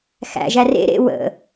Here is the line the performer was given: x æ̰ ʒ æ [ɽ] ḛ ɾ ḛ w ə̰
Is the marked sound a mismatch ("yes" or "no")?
yes